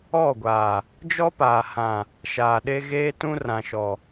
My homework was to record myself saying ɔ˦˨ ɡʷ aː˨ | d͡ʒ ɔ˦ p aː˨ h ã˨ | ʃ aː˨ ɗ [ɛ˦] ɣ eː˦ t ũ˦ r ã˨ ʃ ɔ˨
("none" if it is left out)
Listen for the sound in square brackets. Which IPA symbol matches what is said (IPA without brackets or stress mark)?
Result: e˦